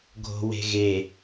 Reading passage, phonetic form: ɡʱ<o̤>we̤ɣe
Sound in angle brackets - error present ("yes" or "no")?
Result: no